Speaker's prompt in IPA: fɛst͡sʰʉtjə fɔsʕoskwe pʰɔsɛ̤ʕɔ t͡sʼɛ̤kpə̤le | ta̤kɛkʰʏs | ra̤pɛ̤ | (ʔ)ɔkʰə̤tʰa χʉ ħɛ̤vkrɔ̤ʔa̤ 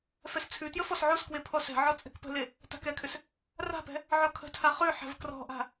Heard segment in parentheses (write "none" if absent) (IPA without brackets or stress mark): ʕ